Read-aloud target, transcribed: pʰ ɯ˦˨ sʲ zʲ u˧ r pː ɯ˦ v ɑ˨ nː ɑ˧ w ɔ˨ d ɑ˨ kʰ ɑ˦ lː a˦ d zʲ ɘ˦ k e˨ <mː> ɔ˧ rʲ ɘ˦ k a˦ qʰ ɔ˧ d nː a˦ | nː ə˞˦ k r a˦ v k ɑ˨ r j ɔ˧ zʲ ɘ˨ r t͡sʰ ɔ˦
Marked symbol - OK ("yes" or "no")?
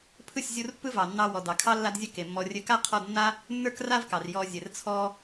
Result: yes